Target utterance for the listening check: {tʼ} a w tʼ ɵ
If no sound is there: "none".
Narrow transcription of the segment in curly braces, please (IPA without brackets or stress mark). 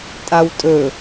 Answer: tʼ